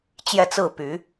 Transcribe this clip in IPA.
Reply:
t͡ɕ j ɛ˥˧ t͡s ɹ̩˥˩ p y˧˥

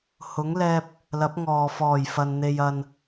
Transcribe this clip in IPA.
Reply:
h ʊ˨˥ ŋ l ɛː˧ p̚ | l ɐ˨˥ p̚ ŋ ɔː˨ f ɔː˨˩ j f ɐ˨ n n̪ e˨ j ɐ˨ n

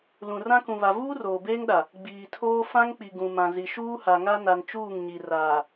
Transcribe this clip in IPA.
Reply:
l ũ˨ r ã˦ k ũ˨ β a˨ v uː˦ r oː˨ b eː˦ ŋ ɗ a˨ | ɡ͡b iː˨ tʰ oː˦ f ã˦ ŋ k͡p i˨ ɡ ũ˨ m ã˨ z i˨ ʃ uː˦ h a˨ ŋ a˦ n a˨ n t͡ʃ uː˦˨ ŋ ɲ i˨ r aː˨

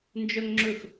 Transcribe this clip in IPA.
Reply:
n d͡ʒ œ ŋ ŋ͡ǁ ɵ x

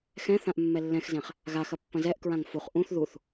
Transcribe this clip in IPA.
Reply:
x ɛ̃ θ ã ʔ mː ɛ lː ɛ̃ x z ɛ̃ χ | ɣ a x ɐ pː ɐ̃ z ɛ ʔ k ɹ ã ŋ f u χ ʔ ũ θ ð u θ

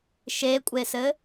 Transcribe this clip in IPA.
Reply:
ʃ e kʷʼ e s ɘ

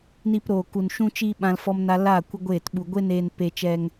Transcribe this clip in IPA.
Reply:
n i˧ p ɾ oː˨ k u˨ n ʃ ũ˧ t͡ʃ iː˧ ɓ ã˦ l f ɔ˦ m n a˦ l a˦˨ kʷ ə˦ ɡʷ eː˦˨ t ɓ u˧ ɡʷ e˦ n eː˧ n p e˧ t͡ʃ ɛ˧ ŋ

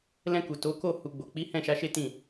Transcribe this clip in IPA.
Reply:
l ɛ̃˧ k u˨ t o˨˦ k o˦˨ h u˨ ɡ͡b o˨ k͡p i˨˦ h ɛ̃˦˨ ʃ a˨˦ ʃ e˦ t ĩ˦˨

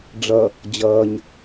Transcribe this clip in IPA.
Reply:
ɖ͡ʐ ʌ | d͡ʑ ʌː ɲ

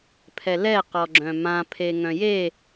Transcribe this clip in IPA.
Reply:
pʰ ɛ l ɛ q ɔ ɡ͡ǁ œ̃ m ã pʰ e ŋ œ̃ j e

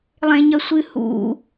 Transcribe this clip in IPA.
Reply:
lˠ ẽ ɲ ɐ sʷ ɨ h ṵ

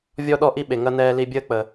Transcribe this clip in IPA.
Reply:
vʲ ɔ˦ ɗ ɔ˥ ʔ i˥ ɓ e˨ ŋ ɐ˥ n ɛː˦ l i˦ bʲ əː˥ k͡p ə˨

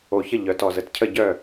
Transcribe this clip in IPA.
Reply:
o˨˩ ç ə˥˩ ʎ œ˩˧ t ɔ˨˩ z ə˩˧ t cʰ ə˥˩ ɟ œ˥˩

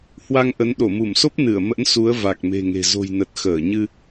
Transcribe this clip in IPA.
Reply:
h w a˧ ŋ ʔ ə˨˦ n ɗ o˧˩ m u˧˩ m s o˦˥ p̚ n ɨ˧˩ ə̯ m ə̰˧˥ n s u˨˦ ə̯ v a˨˩ k̚ m e̤˨˩ ŋ e̤˨˩ z o̤˨˩ j n ə˨˩ t̚ x əː˧˩ ɲ ɨ˧

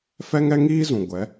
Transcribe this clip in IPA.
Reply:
f ɛ˦ ŋ ɛ˦ ŋ iː˦ z ũ˨ ɡʷ ɛ˨˦

